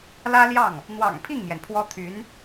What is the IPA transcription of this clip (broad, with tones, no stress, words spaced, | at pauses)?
lä˥ljɑ˥˩ŋ | n̪wɑ̰˨˩ŋpʰi˥˩ŋmjɛ˩n pʰwɔ˥ t̪ʰy˧˥n